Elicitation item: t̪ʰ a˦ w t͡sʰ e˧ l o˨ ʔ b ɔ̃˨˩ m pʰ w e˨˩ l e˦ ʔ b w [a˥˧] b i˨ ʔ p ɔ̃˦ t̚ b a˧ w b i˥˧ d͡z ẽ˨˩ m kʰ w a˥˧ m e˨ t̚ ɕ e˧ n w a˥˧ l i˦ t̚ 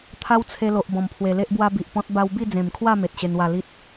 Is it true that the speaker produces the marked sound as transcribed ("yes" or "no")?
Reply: no